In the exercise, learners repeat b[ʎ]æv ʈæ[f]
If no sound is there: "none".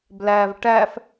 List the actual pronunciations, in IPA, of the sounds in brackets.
l, f

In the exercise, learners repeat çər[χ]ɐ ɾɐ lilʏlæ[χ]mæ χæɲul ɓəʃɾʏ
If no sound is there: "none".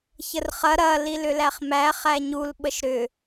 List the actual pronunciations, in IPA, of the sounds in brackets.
χ, χ

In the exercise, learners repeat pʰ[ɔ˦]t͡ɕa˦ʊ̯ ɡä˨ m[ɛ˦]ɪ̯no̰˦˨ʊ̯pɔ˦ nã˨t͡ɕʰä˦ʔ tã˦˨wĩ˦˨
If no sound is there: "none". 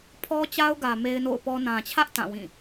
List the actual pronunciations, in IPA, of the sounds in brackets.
ɔ˦, e˦

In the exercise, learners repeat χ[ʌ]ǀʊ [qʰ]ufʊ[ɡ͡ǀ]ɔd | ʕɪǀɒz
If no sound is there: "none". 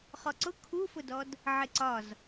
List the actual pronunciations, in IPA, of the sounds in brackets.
ɔ, kʰ, d

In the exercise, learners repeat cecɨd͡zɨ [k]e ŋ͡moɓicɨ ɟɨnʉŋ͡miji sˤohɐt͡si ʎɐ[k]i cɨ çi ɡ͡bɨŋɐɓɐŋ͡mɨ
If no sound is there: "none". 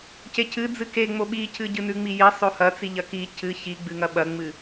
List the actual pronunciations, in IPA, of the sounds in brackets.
k, k

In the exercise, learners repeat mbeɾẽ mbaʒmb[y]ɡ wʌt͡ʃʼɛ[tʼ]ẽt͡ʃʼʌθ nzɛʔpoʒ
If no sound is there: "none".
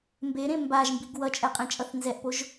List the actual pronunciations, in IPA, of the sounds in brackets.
i, qʼ

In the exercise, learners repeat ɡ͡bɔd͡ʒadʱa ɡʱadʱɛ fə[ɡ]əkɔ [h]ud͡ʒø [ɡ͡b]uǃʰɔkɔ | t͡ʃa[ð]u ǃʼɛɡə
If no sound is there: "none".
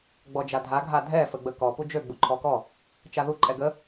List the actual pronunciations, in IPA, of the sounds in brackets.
ɡ͡b, p, ɡ͡b, ð

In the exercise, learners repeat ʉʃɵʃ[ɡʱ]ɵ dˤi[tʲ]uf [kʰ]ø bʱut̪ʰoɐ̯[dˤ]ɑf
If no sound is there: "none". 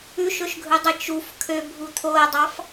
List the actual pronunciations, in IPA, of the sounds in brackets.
ɡʱ, t͡ʃ, kʰ, dˤ

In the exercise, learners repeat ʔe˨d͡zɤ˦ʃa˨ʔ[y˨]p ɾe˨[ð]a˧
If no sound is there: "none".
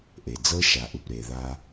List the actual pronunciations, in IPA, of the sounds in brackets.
u˨, ð

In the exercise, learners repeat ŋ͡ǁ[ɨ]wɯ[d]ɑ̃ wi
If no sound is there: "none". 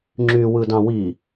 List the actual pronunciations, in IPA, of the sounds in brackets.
y, d

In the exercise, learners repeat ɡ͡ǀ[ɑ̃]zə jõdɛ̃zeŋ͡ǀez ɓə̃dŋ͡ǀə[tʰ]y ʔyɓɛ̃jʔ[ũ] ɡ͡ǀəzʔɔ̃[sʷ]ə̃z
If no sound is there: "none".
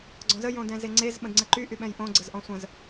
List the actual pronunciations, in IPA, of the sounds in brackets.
ɔ̃, ǃ, õ, sʷ

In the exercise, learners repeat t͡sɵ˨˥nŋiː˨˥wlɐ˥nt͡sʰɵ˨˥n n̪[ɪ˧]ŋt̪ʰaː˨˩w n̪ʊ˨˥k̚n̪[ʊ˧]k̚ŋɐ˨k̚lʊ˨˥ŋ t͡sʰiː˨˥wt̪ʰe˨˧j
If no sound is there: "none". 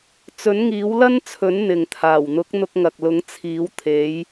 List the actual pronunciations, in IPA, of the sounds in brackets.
ɪ˨, ʊ˧

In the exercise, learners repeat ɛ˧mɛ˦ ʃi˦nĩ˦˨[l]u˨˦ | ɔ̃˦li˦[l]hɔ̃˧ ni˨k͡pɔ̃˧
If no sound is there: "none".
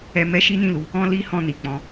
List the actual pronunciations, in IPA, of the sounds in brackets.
l, none

